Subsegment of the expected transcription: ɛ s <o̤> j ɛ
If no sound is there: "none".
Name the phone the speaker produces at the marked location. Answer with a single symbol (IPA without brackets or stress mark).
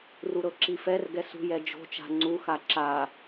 ṳ